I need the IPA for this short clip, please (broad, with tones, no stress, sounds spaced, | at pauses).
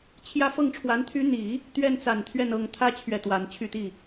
t͡ɕʰ j ä˥ f ɤ˥˩ ŋ ʈ͡ʂʰ w a˧˥ n t̪ʰ y˥ n̪ i˨˩˦ | t̪ ɥ ɛ˥ n t͡s a˨˩ n t̪ʰ ɥ ɛ˥˩ n ɤ˧˥ ŋ t̪ʰ ä˥ t͡ɕʰ ɥ ɛ˥˩ t̪ w a˧˥ n t͡ɕʰ y˥˧ t̪ i˥˩